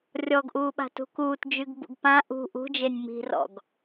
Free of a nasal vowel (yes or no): no